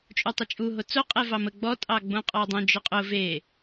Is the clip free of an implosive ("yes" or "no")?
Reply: yes